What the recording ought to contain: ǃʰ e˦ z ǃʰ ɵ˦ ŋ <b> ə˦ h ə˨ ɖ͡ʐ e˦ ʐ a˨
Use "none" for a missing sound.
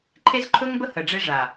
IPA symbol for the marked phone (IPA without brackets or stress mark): b